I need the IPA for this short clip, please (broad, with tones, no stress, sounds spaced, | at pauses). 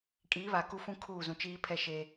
kʼ iː˨˦ β a˨ k u˦ f ũ˦ kʰ uː˦˨ z ũ˨ t͡ʃ iː˦ pʰ ɛ˦ ʃ e˦